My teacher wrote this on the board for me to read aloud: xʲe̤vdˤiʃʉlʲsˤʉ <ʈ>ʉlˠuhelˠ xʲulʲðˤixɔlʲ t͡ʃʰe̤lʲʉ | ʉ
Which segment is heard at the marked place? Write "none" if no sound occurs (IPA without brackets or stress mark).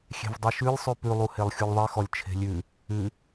p